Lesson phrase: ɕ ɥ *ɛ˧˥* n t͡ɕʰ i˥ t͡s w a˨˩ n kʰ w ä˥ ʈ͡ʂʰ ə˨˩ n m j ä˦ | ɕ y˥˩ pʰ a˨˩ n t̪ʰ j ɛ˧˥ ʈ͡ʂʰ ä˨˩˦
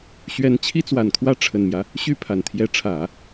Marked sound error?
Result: no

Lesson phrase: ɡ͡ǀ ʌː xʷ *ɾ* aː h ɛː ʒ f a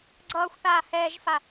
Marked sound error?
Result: yes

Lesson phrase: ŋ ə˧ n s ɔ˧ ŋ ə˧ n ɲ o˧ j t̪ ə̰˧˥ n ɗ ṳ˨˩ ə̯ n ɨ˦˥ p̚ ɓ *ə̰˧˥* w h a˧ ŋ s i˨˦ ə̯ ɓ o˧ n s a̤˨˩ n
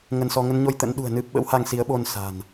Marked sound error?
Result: no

